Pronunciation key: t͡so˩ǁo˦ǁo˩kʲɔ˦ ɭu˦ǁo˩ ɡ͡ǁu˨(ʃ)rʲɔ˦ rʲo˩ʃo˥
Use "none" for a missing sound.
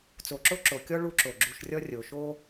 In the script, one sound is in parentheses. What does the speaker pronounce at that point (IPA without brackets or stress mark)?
ʃ